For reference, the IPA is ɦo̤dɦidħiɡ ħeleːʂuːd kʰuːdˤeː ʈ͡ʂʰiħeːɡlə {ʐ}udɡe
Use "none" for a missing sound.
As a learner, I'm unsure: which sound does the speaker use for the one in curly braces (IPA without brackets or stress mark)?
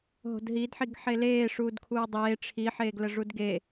ʐ